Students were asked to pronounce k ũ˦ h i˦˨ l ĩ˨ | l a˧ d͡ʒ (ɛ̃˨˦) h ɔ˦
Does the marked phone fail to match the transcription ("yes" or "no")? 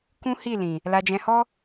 yes